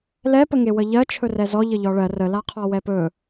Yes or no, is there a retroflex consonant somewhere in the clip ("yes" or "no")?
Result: yes